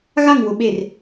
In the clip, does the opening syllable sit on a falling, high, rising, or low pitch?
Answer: falling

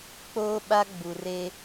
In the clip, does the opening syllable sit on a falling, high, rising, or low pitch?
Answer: high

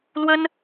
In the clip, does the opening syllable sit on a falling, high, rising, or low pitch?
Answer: high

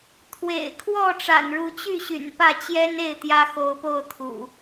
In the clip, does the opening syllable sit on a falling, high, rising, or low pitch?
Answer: low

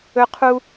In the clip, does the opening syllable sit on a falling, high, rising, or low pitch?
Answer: high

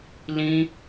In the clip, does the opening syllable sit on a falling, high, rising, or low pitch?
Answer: high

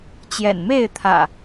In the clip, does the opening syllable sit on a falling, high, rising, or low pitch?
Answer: low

